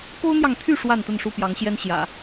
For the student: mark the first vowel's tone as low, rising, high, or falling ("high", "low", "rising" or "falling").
high